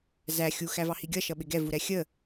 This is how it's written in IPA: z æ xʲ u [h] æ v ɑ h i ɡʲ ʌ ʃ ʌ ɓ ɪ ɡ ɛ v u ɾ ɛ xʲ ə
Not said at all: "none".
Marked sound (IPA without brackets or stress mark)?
x